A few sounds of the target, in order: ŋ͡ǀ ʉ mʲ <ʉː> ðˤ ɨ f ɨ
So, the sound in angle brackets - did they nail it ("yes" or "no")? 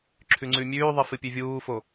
yes